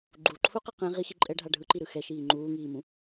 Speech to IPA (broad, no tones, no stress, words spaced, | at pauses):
ɡ͡ǃuǃʰuqɯ qɛ̃ ʁixi ǃʼɛɖʱa ɖʱɯǃiɾɯ xɛʃiː ŋ͡ǃuːŋiːmũ